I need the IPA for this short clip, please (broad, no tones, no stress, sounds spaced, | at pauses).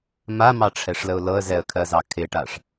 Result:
m a m ɑ ʈ͡ʂʰ ɛ ʂ l ə ʊ̯ l ɤ ə̯ z ɛ ə̯ kʰ ɜ z ɑ kʰ ɪ ʈ a ʂ